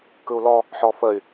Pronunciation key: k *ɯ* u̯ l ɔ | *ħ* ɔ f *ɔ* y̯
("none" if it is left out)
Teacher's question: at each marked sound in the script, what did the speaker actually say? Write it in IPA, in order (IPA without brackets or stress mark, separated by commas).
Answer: ɯ, ħ, ə